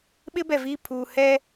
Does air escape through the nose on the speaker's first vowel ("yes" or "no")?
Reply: no